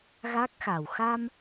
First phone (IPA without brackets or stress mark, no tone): ɣ